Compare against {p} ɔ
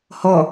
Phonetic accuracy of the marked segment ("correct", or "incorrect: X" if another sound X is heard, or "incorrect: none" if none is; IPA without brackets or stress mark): incorrect: h